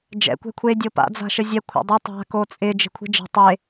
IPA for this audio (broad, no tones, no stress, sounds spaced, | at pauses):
d͡ʒ ɛ̰ kʷ ɛ̤ kʷʰ e dʲ o p a̰ d͡z a̤ ʃ ə zʲ ɛ kʷʰ a̰ dˤ i tˤ a̤ k o t͡sʼ ɪ d͡ʒ e̤ kʷʰ i̤ d͡ʒ ə̤ tˤ e